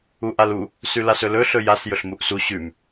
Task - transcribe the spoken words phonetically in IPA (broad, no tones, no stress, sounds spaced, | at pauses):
u ʔ a l u | s ʉ l a s ɵ l ɵ ɬ ɵ j a s j ɵ ɬ m u ʔ s u ɕ ʉ m